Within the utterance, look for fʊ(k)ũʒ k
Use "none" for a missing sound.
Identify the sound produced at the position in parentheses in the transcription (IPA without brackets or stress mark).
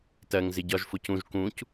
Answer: c